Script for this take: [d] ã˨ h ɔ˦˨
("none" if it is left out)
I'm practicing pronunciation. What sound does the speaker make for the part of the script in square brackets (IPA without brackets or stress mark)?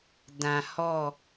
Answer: d